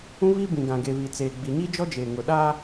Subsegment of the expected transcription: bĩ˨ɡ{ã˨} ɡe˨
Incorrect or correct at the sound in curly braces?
correct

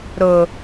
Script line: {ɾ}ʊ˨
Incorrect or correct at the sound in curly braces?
correct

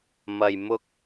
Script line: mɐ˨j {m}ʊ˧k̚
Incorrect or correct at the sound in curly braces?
correct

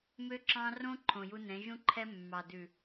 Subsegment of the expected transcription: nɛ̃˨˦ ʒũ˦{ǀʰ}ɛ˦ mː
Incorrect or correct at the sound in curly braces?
incorrect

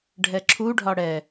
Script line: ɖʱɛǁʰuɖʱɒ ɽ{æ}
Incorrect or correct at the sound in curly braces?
incorrect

